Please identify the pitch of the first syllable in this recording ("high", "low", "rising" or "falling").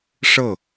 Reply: falling